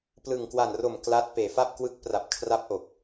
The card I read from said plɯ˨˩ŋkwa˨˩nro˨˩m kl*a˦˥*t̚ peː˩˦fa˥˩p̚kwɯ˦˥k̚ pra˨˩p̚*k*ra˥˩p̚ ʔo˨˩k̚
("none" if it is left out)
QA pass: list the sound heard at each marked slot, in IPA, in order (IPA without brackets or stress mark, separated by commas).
a˦˥, kʰ